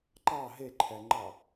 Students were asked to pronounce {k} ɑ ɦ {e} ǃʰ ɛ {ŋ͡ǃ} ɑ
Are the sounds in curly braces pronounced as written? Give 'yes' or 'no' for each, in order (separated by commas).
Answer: no, yes, yes